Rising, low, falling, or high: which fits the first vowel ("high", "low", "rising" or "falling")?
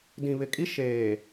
low